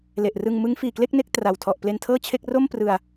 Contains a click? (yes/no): no